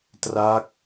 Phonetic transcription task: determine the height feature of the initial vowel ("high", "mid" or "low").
low